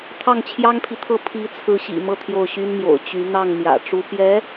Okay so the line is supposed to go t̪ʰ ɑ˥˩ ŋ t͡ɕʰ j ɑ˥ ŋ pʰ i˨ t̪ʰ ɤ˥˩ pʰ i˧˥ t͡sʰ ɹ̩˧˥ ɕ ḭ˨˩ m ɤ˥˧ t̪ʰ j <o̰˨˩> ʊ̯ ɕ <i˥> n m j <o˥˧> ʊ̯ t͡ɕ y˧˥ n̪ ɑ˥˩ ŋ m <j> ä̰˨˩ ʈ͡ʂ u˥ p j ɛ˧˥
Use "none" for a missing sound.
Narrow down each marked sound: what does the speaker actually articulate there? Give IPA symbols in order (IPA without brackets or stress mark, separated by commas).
o˥˩, y˥, o̰˨˩, j